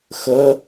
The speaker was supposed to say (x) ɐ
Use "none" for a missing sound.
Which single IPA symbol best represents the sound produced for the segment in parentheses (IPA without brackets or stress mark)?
x